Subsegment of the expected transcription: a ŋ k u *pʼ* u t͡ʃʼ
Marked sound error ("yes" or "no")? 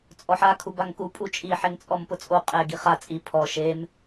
no